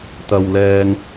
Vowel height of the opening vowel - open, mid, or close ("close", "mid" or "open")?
open